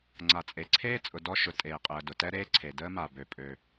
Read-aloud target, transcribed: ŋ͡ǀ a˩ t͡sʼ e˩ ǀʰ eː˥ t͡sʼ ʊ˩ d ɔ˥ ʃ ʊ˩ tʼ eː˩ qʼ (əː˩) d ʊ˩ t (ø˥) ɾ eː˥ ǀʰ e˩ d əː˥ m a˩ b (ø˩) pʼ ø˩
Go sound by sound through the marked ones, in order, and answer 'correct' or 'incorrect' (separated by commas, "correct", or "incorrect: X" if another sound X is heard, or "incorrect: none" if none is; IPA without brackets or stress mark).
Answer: correct, incorrect: ɛ˥, correct